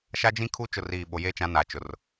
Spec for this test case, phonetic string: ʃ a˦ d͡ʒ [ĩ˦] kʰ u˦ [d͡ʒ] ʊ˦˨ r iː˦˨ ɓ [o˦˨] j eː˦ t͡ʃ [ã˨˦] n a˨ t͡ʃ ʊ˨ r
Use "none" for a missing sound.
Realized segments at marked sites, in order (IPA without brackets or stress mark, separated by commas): ĩ˦, t͡ʃ, o˨, ã˨˦